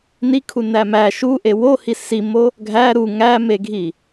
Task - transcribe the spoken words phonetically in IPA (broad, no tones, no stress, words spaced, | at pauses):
nikʰunæ mæ ʃuʔe wohi simo | ɡʱæ ɾu ŋæmeɡʱi